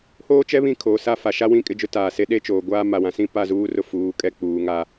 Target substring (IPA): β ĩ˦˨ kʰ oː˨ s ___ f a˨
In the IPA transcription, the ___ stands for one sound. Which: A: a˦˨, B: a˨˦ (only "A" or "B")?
A